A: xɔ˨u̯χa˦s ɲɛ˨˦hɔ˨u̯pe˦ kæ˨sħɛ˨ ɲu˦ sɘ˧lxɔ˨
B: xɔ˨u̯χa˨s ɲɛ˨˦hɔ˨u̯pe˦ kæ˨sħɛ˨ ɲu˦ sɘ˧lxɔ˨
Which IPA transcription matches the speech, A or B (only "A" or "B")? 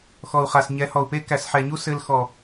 B